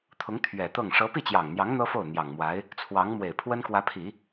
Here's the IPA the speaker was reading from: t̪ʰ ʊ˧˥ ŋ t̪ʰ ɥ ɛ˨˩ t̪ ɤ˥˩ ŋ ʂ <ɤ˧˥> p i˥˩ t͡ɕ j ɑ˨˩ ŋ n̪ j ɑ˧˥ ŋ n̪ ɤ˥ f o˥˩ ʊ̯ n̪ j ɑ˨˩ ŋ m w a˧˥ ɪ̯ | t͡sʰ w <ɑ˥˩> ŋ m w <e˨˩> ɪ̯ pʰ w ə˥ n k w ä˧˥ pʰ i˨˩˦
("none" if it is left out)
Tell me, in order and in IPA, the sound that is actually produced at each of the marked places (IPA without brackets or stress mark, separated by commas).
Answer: ɤ˧˥, ɑ˧˥, e˨˩